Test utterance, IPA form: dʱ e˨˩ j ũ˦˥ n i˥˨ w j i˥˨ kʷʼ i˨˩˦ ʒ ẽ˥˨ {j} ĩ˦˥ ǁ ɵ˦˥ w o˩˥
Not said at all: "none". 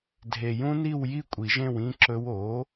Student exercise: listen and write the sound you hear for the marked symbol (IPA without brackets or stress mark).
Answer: w